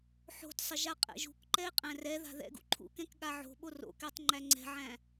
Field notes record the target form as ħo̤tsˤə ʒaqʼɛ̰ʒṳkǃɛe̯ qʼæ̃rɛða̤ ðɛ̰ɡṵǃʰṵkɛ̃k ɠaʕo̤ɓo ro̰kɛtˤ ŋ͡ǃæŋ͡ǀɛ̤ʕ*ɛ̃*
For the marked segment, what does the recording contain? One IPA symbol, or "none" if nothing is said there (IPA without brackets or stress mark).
æ̃